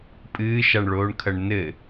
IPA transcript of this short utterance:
pʼɨːʃaɳɭoːɳkʰɐɳ nɘ

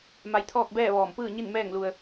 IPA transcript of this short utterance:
ma˧jt̪ʰɔː˥˨k̚bɛː˥˨ ʋɔː˧˩mpɯː˥˨ ɲi˥˨nmɛː˥˨ŋlu˧ə̯

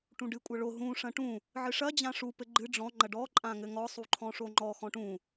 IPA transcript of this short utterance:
ʈũɖɨ kʷʼɐɭo ɦũ ʂɐ̃ʈũ | ʕɨʂɐ d͡ʑãʂu pɘɡ͡ǃɨ ɖ͡ʐɔ̃ ŋ͡ǃɐɖɔ ǃʼãŋɘŋɔ sˤuǃʰɔ̃ʂoŋ͡ǃɔ xɔ̃ʈũ

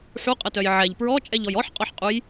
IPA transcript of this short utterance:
ħuqʼətœj ʕɛʎ pɹɔt͡ʃʼɛʎɔj ɔħqʼɔħqʼuj

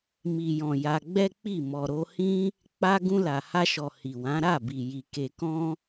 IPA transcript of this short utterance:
mi˨jɔ̃˨ ja˧ɡ͡bɛ˦k͡pi˦˨ mɔ˨ɾo˧hĩ˦ | k͡pa˦ ɡũ˧la˨ha˧ʃɔ˨ hi˨wã˨˦ ɾa˦˨bi˨ji˨ ke˧kɔ̃˦

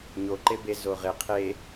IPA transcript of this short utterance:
ɲo ǃebe zoʁɪ qʰe

